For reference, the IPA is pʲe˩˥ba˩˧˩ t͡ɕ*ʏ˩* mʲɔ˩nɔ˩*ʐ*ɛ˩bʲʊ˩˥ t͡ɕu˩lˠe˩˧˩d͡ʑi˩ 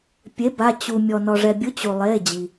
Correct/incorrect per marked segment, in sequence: incorrect, correct

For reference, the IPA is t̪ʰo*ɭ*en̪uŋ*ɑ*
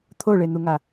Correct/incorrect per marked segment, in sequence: correct, incorrect

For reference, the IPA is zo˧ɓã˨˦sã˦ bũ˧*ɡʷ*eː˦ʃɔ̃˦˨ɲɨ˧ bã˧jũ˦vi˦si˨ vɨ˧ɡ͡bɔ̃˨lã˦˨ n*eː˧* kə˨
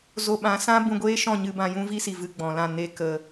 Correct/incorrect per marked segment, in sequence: correct, incorrect

